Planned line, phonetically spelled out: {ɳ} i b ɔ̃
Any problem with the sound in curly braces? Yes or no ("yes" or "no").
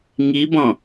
yes